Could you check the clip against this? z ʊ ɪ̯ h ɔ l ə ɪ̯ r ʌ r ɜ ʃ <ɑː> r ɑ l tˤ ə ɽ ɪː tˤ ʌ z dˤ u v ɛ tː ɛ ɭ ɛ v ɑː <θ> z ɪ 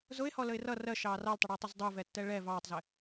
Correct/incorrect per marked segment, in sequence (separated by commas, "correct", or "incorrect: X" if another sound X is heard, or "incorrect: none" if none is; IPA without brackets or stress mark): correct, incorrect: tˤ